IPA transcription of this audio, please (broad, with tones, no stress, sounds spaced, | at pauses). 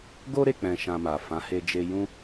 ɡ o˦ ɾ e˦˨ k͡p ɛ̃˧ ʃ ã˧ m a˨ f ã˨˦ h e˧ d͡ʒ e˧ j ũ˦